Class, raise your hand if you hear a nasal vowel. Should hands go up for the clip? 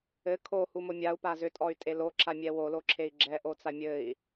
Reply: no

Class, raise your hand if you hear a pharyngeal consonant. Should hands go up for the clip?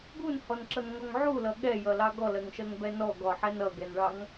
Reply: yes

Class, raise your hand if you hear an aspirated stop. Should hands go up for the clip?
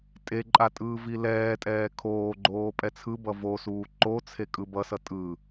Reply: yes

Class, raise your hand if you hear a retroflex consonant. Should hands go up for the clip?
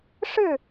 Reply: yes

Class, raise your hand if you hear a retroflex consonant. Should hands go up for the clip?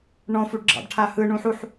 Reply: yes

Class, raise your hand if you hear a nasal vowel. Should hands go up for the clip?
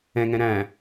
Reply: yes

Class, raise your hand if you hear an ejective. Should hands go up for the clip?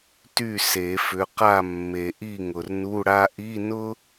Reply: no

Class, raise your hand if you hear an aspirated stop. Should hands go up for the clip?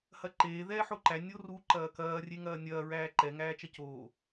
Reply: no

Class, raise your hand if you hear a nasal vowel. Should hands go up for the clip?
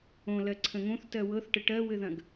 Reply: yes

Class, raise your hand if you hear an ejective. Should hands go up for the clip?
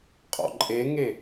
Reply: yes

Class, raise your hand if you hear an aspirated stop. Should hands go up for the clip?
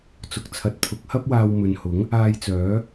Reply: yes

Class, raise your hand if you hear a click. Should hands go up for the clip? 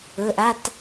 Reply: no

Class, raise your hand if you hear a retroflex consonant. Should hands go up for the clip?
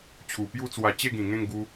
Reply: no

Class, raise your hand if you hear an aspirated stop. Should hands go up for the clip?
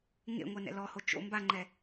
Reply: no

